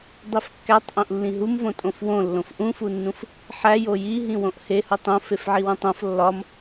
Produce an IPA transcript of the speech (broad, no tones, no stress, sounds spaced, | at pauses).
dˤ i f kː æ tˤ ʔ õ ʔ lː ĩ ɦ u m v õ tʼ õ f w õ lː õ f ʔ ũ f u nː ũ f | ħ æ j o j i ɦ ĩ w õ ʔ h e h u tˤ õ f e f ʕ i w ũ tˤ õ f lː ɒ m